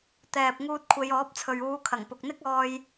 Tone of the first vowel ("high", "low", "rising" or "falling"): low